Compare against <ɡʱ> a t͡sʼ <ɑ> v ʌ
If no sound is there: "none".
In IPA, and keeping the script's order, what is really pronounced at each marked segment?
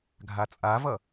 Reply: ɡʱ, a

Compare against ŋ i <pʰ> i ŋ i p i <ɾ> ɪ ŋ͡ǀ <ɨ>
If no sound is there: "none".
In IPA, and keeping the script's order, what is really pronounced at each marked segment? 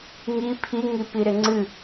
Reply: pʰ, ɾ, ɨ

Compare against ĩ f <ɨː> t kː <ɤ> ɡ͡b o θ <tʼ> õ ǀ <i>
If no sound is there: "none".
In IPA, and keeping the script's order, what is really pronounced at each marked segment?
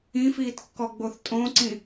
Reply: iː, ɔ, tʼ, ĩ

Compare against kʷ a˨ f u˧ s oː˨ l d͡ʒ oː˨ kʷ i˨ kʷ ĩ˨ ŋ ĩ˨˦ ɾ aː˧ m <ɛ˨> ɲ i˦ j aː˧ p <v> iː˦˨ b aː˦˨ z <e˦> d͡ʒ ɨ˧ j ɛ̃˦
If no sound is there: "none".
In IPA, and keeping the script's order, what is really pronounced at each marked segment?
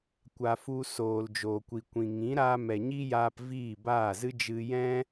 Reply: ɛ˨, v, ɨ˦

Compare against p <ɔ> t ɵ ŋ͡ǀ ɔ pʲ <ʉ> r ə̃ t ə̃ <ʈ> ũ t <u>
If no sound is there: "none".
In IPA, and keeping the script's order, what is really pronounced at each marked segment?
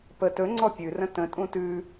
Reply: ə, ʉ, tʼ, ʉ

